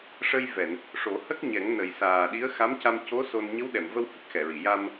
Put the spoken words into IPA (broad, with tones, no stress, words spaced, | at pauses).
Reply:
ʂə˧jvɛ˨˩˨n | ʂo˨˩˦hə˦˥k̚ɲɛ˨˩˦ŋ nə˨˩jsaː˨˩ɗi˧˥ə̯ xa˧˥mca˧m co˧˥ so˧n ɲə˧˥wɗɛ˨˩˨mvə˧whə˨˩k̚ xɛ˨˩˨ɹi˨˩˨ ja˧m